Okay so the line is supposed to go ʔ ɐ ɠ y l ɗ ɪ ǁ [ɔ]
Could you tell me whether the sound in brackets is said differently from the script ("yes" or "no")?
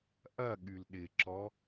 no